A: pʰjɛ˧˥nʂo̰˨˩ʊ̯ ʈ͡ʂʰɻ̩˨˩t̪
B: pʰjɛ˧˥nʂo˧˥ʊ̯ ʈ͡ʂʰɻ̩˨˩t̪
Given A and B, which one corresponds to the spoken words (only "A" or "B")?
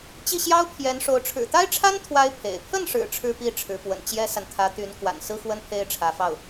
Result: B